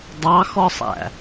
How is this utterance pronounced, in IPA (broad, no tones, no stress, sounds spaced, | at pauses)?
dˤ ɑ x ɔ sˤ æ̰